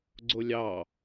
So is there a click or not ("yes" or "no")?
yes